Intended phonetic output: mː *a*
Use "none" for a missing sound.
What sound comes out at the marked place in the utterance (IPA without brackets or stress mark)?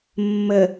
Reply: ə